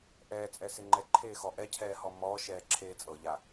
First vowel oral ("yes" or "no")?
yes